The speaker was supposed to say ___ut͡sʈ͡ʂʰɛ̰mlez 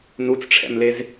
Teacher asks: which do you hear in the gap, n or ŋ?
n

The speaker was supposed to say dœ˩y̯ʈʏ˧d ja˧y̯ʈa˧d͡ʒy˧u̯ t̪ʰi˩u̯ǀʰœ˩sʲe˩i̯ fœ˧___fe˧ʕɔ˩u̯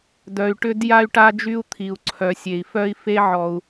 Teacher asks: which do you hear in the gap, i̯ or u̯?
i̯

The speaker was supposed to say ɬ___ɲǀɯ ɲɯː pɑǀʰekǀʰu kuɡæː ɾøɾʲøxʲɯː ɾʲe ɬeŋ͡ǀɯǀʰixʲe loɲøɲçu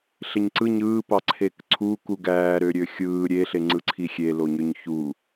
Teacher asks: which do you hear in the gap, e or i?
e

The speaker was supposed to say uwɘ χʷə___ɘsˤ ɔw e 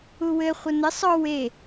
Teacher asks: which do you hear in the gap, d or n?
n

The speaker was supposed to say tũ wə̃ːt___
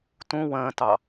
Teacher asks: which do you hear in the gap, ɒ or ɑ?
ɑ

